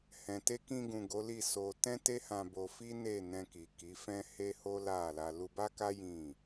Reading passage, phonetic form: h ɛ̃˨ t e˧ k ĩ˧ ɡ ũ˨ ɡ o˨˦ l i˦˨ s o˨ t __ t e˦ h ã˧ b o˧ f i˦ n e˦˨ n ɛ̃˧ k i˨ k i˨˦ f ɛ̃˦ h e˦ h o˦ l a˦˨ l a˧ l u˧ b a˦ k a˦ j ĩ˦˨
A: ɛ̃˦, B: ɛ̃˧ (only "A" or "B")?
B